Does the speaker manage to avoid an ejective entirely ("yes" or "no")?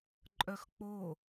no